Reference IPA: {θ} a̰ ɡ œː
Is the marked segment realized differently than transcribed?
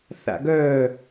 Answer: no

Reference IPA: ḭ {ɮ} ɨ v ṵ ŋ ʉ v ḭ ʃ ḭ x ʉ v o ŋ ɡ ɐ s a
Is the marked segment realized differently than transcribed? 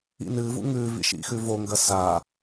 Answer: yes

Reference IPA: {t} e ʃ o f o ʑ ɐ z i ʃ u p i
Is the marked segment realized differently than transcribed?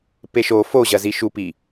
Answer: yes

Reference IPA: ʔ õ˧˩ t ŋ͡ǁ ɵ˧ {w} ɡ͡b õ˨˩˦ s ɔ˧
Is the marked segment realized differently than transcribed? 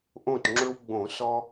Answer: no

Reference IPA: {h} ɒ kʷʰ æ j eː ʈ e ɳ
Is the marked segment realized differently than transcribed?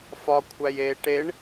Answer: yes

